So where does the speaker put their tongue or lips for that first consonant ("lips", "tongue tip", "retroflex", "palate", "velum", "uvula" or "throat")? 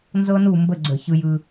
tongue tip